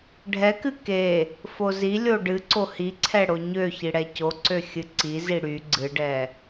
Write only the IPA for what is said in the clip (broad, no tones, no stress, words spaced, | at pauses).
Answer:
ɖʱɛkɨ ke | fozilʲo ɖɨǀo hiǀʰɛ ɽoɲøçi ɽɛcoǀø xʲɨǀizi ɽy ɡ͡ǀɨɖɛ